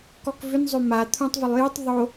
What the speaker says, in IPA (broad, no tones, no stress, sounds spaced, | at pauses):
k ɔ k v ʏ n zˤ ø m a t̪ʰ ũ tˤ v ʏ lˠ j u tˤ ðˤ o